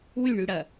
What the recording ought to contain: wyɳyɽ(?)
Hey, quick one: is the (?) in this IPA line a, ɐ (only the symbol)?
ɐ